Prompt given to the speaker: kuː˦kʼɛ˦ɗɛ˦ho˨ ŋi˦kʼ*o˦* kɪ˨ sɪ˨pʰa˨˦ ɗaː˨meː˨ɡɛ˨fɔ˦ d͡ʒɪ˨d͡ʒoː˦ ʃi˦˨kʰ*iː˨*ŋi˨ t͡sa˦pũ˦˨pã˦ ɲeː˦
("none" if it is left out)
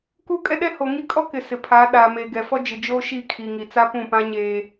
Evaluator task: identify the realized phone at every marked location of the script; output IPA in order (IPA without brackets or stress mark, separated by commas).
ɔ˦, i˨